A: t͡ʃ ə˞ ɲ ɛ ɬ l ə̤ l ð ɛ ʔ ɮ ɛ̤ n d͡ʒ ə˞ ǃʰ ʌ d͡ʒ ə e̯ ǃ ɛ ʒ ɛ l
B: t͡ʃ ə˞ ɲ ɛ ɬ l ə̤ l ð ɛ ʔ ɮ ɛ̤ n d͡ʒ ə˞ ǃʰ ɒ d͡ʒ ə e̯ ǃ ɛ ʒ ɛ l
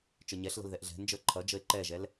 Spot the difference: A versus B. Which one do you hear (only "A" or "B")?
A